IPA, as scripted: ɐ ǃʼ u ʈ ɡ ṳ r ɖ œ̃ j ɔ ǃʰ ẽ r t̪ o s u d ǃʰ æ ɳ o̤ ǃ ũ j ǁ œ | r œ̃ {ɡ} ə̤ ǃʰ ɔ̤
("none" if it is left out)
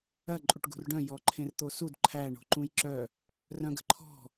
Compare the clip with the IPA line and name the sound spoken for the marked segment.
ɡ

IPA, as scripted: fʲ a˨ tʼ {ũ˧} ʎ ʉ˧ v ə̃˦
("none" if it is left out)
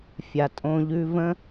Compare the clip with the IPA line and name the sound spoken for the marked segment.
õ˧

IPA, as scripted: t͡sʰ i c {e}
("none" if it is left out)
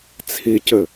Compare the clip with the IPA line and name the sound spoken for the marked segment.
ɘ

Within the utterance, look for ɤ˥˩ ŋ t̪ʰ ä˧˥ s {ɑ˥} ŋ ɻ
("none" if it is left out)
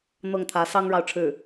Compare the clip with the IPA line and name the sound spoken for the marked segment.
ɑ˥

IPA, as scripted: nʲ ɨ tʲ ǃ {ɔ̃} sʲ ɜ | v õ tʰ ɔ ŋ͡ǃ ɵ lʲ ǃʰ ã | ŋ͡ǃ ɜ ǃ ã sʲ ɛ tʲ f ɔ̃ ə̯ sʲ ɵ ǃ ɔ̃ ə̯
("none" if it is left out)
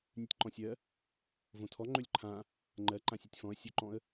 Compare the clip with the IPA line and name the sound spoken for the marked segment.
ɔ̃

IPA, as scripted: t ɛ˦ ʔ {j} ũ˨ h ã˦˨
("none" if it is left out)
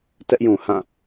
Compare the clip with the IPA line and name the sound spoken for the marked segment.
j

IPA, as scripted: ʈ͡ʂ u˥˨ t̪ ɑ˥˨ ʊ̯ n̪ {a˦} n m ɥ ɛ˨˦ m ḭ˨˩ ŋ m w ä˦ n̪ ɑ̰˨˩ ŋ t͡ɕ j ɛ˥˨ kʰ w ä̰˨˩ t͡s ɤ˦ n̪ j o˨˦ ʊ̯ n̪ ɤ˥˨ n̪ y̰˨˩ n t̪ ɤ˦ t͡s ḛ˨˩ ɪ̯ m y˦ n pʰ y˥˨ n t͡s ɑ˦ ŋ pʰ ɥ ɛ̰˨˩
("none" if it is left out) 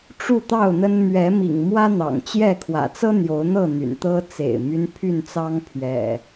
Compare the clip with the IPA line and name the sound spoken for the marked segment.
ə˦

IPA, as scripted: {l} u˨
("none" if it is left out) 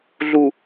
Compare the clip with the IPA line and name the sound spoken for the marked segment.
ɮ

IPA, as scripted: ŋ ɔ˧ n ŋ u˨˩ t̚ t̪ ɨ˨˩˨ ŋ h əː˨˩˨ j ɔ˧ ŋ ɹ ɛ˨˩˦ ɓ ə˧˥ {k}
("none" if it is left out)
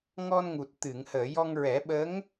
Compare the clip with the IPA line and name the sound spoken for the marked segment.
ŋ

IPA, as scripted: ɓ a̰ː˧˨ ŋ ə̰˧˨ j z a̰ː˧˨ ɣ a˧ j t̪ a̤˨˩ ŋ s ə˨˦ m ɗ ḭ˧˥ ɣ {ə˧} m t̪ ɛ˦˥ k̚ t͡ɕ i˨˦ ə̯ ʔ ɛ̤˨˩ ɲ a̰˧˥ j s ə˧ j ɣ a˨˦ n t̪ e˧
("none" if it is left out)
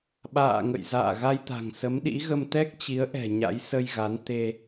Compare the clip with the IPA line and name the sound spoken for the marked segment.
ə˧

